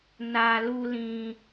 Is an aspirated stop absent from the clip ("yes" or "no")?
yes